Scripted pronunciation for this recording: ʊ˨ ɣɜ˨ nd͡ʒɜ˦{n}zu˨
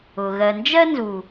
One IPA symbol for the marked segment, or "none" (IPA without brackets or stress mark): n